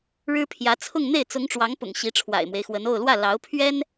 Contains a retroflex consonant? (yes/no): yes